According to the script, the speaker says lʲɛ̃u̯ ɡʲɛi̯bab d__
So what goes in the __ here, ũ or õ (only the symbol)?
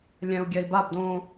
õ